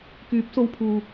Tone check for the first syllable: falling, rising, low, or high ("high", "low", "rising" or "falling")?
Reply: rising